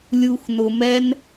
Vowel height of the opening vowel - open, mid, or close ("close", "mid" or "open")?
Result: close